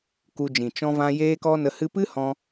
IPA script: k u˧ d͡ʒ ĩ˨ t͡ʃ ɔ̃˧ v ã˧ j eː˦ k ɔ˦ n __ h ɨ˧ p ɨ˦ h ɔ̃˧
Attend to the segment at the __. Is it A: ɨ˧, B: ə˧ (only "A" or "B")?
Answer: B